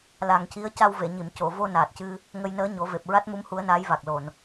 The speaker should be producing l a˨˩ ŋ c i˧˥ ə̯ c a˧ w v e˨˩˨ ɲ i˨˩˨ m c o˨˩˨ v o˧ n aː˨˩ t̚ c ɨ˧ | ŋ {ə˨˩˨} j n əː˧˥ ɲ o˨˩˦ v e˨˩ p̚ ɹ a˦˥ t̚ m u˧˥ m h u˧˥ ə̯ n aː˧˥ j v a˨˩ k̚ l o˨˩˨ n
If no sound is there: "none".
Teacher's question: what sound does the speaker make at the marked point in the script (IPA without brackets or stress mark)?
ə˧